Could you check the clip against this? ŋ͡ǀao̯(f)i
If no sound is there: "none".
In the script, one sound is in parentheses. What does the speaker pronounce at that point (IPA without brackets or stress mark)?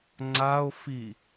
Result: f